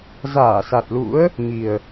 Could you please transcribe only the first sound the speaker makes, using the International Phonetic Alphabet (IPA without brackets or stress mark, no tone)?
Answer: z